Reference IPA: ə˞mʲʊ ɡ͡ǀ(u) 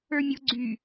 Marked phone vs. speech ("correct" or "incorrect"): incorrect